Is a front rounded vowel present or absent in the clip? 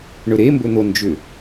present